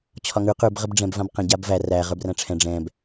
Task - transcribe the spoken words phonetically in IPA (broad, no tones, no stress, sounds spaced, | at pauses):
t͡ɕʰ ɒ ŋ ʉ q ʉ b ʁ ə b ɖ͡ʐ ɛ̃ b v ã b q ə̃ ɟ a b v æ r æ ʁ ə˞ b r æ̃ ʈ͡ʂʰ ɛ̃ ɖ͡ʐ ɛ̃ b